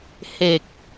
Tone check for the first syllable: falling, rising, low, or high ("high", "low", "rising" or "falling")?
low